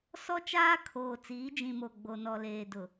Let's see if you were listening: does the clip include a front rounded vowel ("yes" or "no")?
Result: no